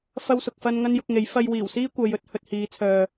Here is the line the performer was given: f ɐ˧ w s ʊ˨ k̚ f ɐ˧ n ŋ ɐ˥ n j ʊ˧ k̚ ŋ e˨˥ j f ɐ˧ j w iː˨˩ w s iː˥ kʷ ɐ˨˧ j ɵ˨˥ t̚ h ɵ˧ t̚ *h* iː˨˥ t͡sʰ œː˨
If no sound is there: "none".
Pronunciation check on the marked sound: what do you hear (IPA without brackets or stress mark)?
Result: h